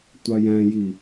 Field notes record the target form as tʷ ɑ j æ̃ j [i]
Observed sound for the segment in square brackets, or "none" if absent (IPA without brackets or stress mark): i